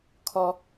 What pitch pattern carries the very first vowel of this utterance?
high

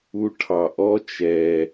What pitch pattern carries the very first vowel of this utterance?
high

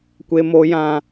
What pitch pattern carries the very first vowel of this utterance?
high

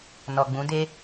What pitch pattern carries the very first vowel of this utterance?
low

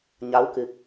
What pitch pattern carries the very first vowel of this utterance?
rising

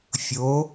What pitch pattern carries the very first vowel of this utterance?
rising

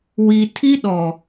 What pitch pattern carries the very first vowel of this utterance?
low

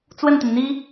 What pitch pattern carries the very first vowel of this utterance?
falling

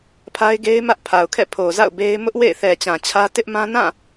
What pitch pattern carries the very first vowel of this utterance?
high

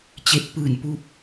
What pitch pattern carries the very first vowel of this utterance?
rising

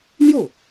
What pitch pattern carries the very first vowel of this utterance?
falling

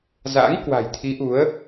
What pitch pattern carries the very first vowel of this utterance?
rising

